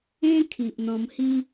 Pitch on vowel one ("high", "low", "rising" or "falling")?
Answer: high